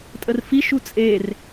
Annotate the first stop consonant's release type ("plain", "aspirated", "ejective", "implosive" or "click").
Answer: ejective